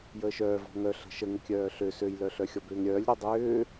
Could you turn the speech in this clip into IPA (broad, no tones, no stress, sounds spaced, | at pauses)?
j əː ʃ œː v ɔ̤ ŋ œ ɬ ə̤ ʃ ə ŋ ə kʲ œː ɬ ø s ø j l œ ɬ œ xʲ ɔ b ʏː ŋ ɾʲ œː lʲ ɾ ø dˤ ʏː